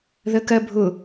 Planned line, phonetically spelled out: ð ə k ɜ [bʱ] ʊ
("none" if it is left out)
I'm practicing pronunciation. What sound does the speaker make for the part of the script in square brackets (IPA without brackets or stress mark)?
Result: bʱ